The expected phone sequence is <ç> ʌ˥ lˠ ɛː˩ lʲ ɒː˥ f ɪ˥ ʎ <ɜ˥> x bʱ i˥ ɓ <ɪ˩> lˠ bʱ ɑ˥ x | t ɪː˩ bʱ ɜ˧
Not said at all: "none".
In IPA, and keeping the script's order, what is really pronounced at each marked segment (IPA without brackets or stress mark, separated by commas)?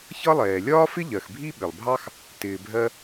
ç, ɜ˩, ɪ˩